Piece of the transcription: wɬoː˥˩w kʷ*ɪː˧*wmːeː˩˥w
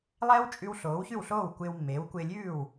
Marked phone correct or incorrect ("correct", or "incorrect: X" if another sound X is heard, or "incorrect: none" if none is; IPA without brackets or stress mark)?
correct